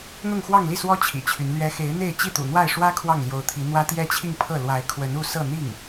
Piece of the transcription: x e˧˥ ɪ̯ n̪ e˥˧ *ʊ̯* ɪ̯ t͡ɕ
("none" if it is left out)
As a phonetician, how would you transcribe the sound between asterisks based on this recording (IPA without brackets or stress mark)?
none